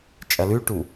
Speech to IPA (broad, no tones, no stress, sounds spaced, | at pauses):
t͡ʃʼ ɐ l ʉ ʈ u